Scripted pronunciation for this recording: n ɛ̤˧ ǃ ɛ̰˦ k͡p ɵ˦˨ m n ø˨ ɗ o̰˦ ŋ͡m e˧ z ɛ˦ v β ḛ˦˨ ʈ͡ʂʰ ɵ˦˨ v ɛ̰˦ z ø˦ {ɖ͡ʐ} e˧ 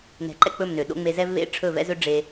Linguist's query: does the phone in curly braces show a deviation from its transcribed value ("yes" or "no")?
no